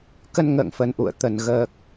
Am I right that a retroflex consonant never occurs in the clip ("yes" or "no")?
yes